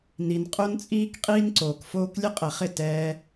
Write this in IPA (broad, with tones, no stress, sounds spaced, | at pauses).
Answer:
n i˨ n qʼ o˦ n t͡sʼ iː˦ k qʼ iː˦ n ǀ oː˨ k f oː˦ k lʲ ə˦ qʼ ɛ˨ χ ɪ˦˨ t ɛː˧